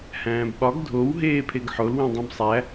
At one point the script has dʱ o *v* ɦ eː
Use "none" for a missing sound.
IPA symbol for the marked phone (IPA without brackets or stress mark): w